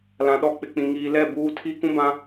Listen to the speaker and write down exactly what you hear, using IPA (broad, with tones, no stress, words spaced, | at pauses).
lã˨ɗɔ˦ k͡pɪ˨k͡pĩ˨ ŋiː˨lɛ˦˨ buː˦ tʰi˦kũ˦bã˦